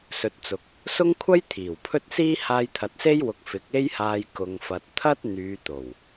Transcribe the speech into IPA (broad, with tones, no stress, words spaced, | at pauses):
sɵ˨t̚t͡sʊ˨k̚ | sʊ˥ŋkʷʰɐ˥j t̪ʰiː˨˩wpʰɵ˥t̚siː˥ haː˧jt̪ʰɐ˨t̚se˥jwʊ˨k̚ fɪ˨˥k̚e˥jhaː˧j kʊ˨ŋfɐ˨t̚ t̪ʰɐ˥t̚ n̪yː˨˧t̪o˨˩w